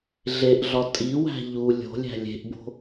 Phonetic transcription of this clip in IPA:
ɮ e ʔ ɮ ɒ tʼ i w æ̤ ʎ u lʲ o̤ lʲ æ̤ lʲ e̤ ʔ b o̤

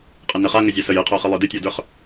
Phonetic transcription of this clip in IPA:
qʼ ɘ n ɘ χ a ŋ ə zʲ a s ə j ɨ qʰ ə˞ χ ɨ lˠ ə˞ d ɨ tʲ ə˞ d ə˞ χ

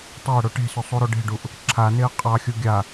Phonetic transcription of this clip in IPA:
tˤ e ə̯ ɽ o ʈ e̤ s ʏ sˤ u ɾ o ɖ e̤ ɖ u ʔ | ǁʰ a n e ə̯ qʼ ɑ xʲ u ɡʲ a

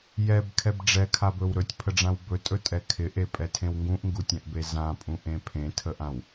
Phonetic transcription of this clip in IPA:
j ɛ b kʰ ɛ b ɖ͡ʐ ɛ kʰ a b ɵ w ɾ ɵ tʲ pʰ ə ɖ͡ʐ ã w b ɵ tʼ ɵ tʼ ɛ kʰ ɪ ʔ e pʼ ɛ tʰ ẽ w ŋ ɡ ũ ʔ ŋ ɡ u tʲ ã ʔ b e z ã pʼ ũ ʔ ẽ pʰ ẽ tʰ ə ʔ ã w

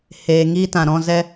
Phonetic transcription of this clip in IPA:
h eː˨ ŋ iː˦ t ã˨ ɾ ɔ̃˦˨ z ɛ˦

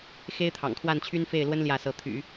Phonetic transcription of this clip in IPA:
x e˥ ɪ̯ t̪ʰ ɑ̰˨˩ ŋ kʰ w a˥˩ n t͡ɕʰ y˥ n f e˥˩ ɪ̯ l w ə˥ n l j ä˥˩ s ɤ˧˥ t̪ʰ y̰˨˩˦

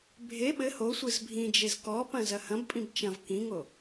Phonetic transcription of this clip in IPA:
bʱ e ɓ ɘ h o sʷ ɨ z bʱ ĩ d͡ʒ e z k ɔ p ɐ̃ z ɐ h ɐ̃ b pʼ ĩ b t͡ʃ ɐ̃ v k ĩ ŋ o

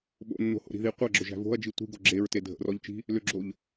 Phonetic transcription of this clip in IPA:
ɓ o̰ nː o̤ h o̰ ɾ i̤ ð i qʷ æ ɡ͡ǁ ʏ ʒ æ̤ v o̤ ɐ̯ d͡ʒ i tʷ i̤ ɡ o ɡ͡ǁ e ɹ t e dʱ ə̰ r ɔ ʎ t͡ʃ i̤ | l ʏ ɡ͡ǁ o ʎ

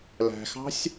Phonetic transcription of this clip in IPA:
l æ̤ x ɑ̤ sʲ

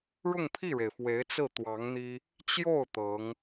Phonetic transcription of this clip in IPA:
ɻ ʊ˥˧ ŋ pʰ i˥˩ ɻ e˩ ɪ̯ f w e˧˥ ɪ̯ t͡s ɹ̩˥˩ t̪ w ɑ˧˥ ŋ n̪ i˥ | t͡ɕ j o˥˩ ʊ̯ t̪ ɤ˧˥ ŋ

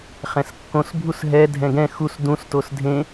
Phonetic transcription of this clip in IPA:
χ ɛ̃ s kː õ s bʱ u s ɦ ɛ dʱ ɛ̃ ɡ ɛ̃ x u s d ũ s t o s dʱ ẽ

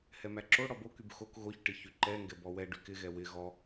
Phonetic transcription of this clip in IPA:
h ɛ m æ ǁ o ɽ ɔ b o k y b x o k ɣ o ç ʈ ɪ ç y ǃ ɛ ŋ ɡ ɛ b ɔ w ɛ ɖ y k ɪ ɣ ɛ w ɪ ɣ ɔ

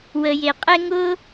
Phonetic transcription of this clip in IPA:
w ə˧ j e˧ qʼ ɛ˦ ŋ ʊ˦

